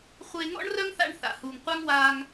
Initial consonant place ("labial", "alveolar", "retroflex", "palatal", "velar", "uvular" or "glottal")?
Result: uvular